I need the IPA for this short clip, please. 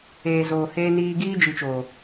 eː˨ z oː˨ h eː˧ n iː˧ ɡ iː˦ d͡ʒ i˨ t͡ʃ oː˨

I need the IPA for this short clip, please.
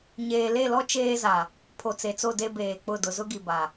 ɲ eː˨ l e˦˨ l ɔ˦ t͡ʃ eː˦ z a˨ | pʰ o˨ t͡s e˨ t͡s o˦˨ d e˦ b eː˨ k͡p ʊ˦˨ d ʊ˨ z ʊ˦ ɡ i˨ b a˨

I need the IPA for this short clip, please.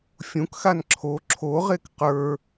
fʲ ũ k x a n ǁʰ o ǁʰ o ʁ e k q ə˞

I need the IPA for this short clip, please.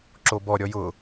ǁ o b ɔ ɾʲ ɔ j ʊ

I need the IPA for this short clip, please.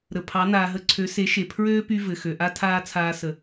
ɾ ə˨ pʰ ɑ˨˦ n aː˨ ɦ ə˨˦ ǀʰ ø˨˦ s e˨˦ ʃ e˨ pʰ ɹ øː˦ p y˧ v ɘ˨ x ø˨ ʔ a˦ tʰ aː˦ t͡sʰ aː˧ s ə˨

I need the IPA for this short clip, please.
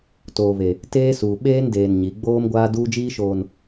t oː˨ β e˨ | t eː˦ s uː˨ ɓ eː˦ n d eː˨ n ɲ i˨˦ ɡ͡b oː˦ m ɡʷ aː˦ d uː˦ d͡ʒ iː˦ ʃ oː˨ n

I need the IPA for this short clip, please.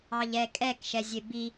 ɑ ʎ ɛ kʼ ɛ k ʃ ɛ zʲ e b i

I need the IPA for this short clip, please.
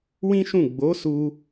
w ĩ˦ ʃ ũ˦˨ ɡ͡b o˨˦ s u˧

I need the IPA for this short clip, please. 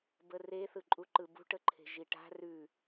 b ə r e θ ɯ ǃʼ u ǃ ɯ b ṳ ʈ ə ǃʰ e̤ ʒ i ʈ a̤ r ʉ

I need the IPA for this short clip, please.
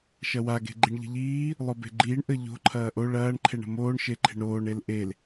ʃ ɐ w a ɡ e̤ ɡ͡ǃ i ɳ ʎ ə̤ ʎ iː | lˠ o b e̤ ɡ͡ǃ iː ɳ ʔ ə ʎ o̤ ǃʰ ɐː ʔ o ɭ ɐː ɳ ǃʰ e ɳ ə̤ m oː ɳ ʃ e ǃʰ e̤ ɳ ɾ oː ɳ e l ʔ e l

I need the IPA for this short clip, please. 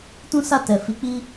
t ũ˦ s a˦˨ t ɛ˨ f i˨˦ k͡p i˦

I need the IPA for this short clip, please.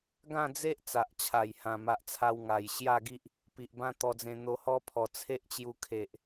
ɡ ã˥˧ d͡z e˦ ʔ t͡s a˨ ʔ t͡ɕʰ a˨˩ j h ã˨˩ m a˨ ʔ t͡sʰ a˧ w ŋ a˨˩ j ɕ j a˥˧ ɡ i˦ ʔ | p i˨ ʔ b ã˦ t̪ ɔ˧ d͡z ẽ˧ n̪ o˧ h ɔ˦ pʰ ɔ˨˩ t͡sʰ e˦ ʔ t͡ɕ j u˧ kʰ e˨ ʔ

